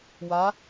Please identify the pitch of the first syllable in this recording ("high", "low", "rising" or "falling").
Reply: rising